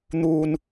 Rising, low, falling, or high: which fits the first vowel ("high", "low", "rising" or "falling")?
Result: low